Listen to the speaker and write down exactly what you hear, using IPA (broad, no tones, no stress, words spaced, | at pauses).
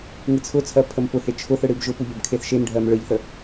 ŋɨt͡sʰʊt͡sʰɜ pʰəmpʊhe t͡ʃʰʊθɯ ɽɨbʒʊpu ʎʊbkʰeθʃemɖʱɜm ɭɯʎθə